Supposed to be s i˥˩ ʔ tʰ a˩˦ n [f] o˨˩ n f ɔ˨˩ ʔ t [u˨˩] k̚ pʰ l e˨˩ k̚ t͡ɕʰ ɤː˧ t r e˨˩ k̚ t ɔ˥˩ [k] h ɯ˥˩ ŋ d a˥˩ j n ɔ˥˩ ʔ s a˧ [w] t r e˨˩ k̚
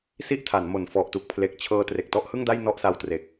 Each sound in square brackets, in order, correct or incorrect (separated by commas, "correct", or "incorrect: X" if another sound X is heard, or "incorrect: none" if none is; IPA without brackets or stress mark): incorrect: m, correct, incorrect: ʔ, correct